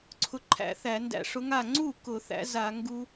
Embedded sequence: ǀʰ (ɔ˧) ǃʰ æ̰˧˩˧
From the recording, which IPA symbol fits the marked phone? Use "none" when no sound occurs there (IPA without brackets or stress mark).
ʊ˧